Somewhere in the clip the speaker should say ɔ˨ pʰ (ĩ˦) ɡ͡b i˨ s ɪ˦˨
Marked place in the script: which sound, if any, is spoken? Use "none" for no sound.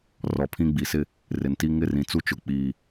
ĩ˦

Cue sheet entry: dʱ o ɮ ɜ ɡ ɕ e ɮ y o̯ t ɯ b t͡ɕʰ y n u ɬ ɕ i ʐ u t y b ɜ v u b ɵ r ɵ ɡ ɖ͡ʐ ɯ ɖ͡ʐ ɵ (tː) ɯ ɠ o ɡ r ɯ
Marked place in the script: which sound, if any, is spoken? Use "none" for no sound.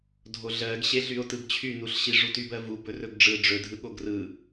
dʱ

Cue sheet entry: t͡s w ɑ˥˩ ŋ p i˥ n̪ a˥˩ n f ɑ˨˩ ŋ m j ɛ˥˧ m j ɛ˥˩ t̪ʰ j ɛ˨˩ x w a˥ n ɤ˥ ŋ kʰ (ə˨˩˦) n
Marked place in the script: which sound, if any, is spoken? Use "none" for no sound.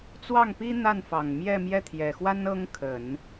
ə˨˩˦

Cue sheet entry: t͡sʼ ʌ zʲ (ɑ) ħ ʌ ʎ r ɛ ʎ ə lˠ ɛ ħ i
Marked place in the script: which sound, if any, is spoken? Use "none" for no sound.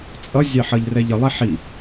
ɑ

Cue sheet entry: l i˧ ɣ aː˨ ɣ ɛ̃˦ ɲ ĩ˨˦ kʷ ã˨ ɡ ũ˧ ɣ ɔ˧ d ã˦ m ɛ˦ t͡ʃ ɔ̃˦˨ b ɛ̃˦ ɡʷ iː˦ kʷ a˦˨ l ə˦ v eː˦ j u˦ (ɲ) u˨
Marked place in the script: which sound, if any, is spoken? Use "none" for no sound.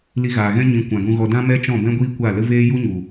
ɲ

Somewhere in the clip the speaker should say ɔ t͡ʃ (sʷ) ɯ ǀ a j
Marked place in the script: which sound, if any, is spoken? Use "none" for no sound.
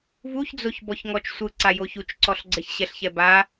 sʷ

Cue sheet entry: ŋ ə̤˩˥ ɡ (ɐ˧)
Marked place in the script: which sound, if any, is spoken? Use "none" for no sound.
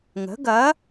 ɐ˩˥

